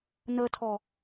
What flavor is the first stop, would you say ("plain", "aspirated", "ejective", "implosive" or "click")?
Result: aspirated